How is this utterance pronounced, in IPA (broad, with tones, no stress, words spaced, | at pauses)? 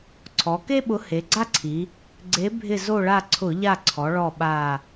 ǀʰɔ˩˧ke˥ɓʊ˨˥ he˩˧ɡ͡ǀa˥ǀʰi˩˧ | ɡ͡ǀe˨˥bʱɪ˦˨ zo˦˨ɭa˦˨ ǀʰʊ˧˩˧ʎa˦˨ǀʰɔ˩˧ ɭɔ˦˨ɓa˦˨